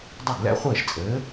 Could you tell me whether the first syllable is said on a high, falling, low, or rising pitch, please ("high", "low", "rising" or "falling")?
falling